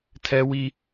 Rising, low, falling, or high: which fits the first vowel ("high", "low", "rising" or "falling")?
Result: high